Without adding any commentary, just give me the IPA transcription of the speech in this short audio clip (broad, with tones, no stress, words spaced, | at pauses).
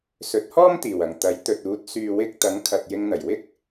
sɵ˨˥t̚hɔː˥mt̪iː˨˩w ɐ˨˩ŋt̪ɐ˨˥j t̪ɵ˨t̚uː˨˥t̚ syː˨wɪ˧k̚ t̪ɐ˨˥ŋkʰɐ˨t̚ jɪ˧ŋn̪ɐ˨˩jwɪ˥k̚